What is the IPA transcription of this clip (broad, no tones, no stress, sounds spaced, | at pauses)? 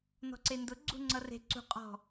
n ɔ̤ ǀ e n d ʊ ɡ͡ǀ ṳ ŋ͡ǀ ʌ r e̤ ǀ ṳ qʼ ɔ̤